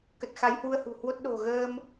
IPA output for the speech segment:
k ə˨˩ t̚ x a˨˦ j h w u˧ ə̯ h ṳ˨˩ h w o˦˥ t̚ ɗ o̤˨˩ ɣ əː˧ m

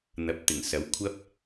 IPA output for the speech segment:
n̪ ɐ˨˥ p̚ t̪ ɪ˨˩ ŋ s ɐ˨˥ w kʷʰ ɐ˥ p̚

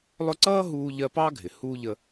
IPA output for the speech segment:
lˠ ʊ˦ ǀ ʌː˥ ɦ uː˦ ʎ ɜ˦ p ɑ˥ ɡʱ ɪ˩ h uː˥ ʎ ə˦

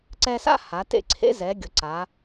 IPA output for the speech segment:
ǀ ɛ˧ s a̰˥ h a˩˧ t ḛ˧ ǀʰ ḛ˧˥ z ɛ˩˧ ɡʲ ʊ˩˧ ǀ a˩˧

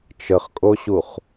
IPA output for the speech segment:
t͡ʃ ə χ kʼ o ɕ u χ

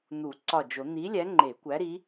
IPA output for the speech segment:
n̪ u˨˩˦ ǀ ɒ˧˩ d͡ʒ o˨˩˦ n̪ i˨˥ lʲ æ˨˥ ŋ͡ǃ e˨˩˦ kʷ æ˨˥ ɾ i˨˥

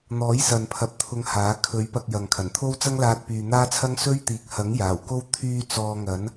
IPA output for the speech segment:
n̪ ɔː˨˥ j s ɐ˨ n pʰ ɐ˨ p̚ t̪ʰ ʊ˨˧ ŋ h aː˨˥ kʰ ɵ˨˥ ɥ p ɐ˧ k̚ j ɐ˨ ŋ kʰ ɐ˨˩ n t̪ʰ o˥ w t͡s ɐ˥ ŋ l aː˧ t̚ p yː˨ n̪ aː˥ t͡sʰ ɐ˥ ŋ s ɵ˥ ɥ t̪ iː˨˥ k̚ h ɐ˨˥ ŋ j aː˨˩ w k o˥ w t̪ʰ yː˧ t͡s ɔː˧ ŋ ɐ˨˥ n

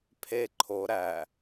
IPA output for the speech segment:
pʰ e ǃʰ o ɾ æ

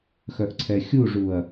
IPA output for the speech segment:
x œ ʔ ǀʰ ɛ xʲ u ʐ u ɐ̯

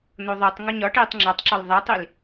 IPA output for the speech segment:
n o ðˤ u tˤ ŋ ɒ ɲ ɒ ʈ iː tˤ ŋ͡ǁ ɒ tˤ ǁ ɒ l ðˤ æ tˤ i l

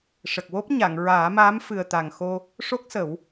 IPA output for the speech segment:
ʂ ə˨˩ k̚ w o˦˥ p̚ ɲ a˨˩˨ ŋ ɹ aː˨˩˦ m aː˧˥ m f ɨ˨˩ ə̯ t̪ a˨˩ ŋ x o˧ | ʂ o˦˥ k̚ s ə˨˩˦ w

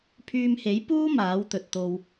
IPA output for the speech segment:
pʰ yː˧ m h e˨˥ j p uː˥ m aː˨˥ w t̪ ɵ˨ t̚ t̪ o˧ w

